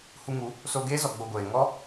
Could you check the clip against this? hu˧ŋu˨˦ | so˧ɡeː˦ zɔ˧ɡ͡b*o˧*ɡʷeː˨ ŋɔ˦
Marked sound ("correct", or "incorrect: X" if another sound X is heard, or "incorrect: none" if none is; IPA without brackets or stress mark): correct